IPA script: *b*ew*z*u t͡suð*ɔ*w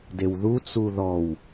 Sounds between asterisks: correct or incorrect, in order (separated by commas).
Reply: incorrect, incorrect, correct